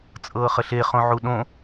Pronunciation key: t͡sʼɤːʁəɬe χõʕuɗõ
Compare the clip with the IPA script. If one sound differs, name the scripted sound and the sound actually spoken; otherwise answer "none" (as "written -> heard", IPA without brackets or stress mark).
ʁ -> χ